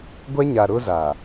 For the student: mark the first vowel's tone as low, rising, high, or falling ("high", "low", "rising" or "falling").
high